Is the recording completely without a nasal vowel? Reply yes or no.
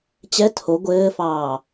yes